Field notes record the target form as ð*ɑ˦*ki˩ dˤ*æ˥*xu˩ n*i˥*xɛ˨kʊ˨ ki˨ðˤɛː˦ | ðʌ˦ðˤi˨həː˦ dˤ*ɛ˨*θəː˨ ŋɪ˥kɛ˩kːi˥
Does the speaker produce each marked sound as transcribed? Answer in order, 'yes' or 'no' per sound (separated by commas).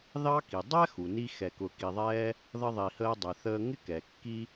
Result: yes, yes, no, no